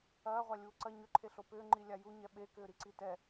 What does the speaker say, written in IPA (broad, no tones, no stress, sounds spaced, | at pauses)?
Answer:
ɐː ʁʷ a lʲ uː ǀ ɐ ɲ ʏ ǃʰ e ɬ o p ʏː ŋ͡ǃ i lʲ a j u ɲ ɛ ɓ e k ʏː ɾ i ǀ i t ɛ